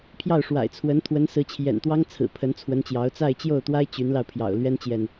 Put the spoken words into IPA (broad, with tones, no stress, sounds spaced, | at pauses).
pʰ j ɑ˥˩ ʊ̯ ʂ w a̰˨˩ ɪ̯ t͡sʰ w ə˧˥ n t̪ʰ w ə˧˥ n s ɹ̩˧˥ t͡ɕʰ j ɛ̰˨˩ n t̪ w ɑ˥ ŋ t͡sʰ ɹ̩˨˩ pʰ ə˧˥ n t͡sʰ w ə˧˥ n t͡ɕ j ɑ˧˥ ʊ̯ t͡s a˥˧ ɪ̯ t͡ɕ j o˥˩ ʊ̯ t̪ w a˥ ɪ̯ t͡ɕ y˧˥ n l ɑ˧ ʊ̯ pʰ j ɑ̰˨˩ ʊ̯ l ɥ ɛ˥ n t͡ɕ j ɛ˨ n